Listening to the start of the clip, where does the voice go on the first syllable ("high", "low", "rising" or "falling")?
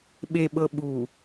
low